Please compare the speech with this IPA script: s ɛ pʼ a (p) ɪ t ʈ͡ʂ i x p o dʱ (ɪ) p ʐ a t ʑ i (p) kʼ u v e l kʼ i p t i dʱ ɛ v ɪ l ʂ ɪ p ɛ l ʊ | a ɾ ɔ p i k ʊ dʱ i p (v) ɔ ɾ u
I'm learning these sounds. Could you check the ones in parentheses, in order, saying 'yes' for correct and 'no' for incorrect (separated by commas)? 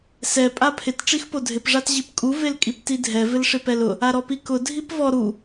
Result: no, yes, yes, yes